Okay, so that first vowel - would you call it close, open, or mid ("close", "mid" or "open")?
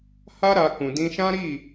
open